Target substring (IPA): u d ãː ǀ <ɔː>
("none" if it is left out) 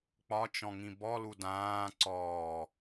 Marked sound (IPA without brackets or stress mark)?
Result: ɔː